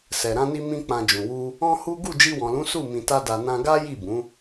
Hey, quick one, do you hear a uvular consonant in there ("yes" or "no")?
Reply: no